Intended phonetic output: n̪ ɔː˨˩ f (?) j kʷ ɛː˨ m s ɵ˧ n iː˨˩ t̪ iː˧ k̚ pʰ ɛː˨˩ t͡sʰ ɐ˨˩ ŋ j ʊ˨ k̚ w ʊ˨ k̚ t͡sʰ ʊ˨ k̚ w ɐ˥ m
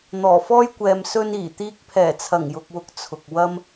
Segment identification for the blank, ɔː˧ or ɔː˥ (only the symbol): ɔː˥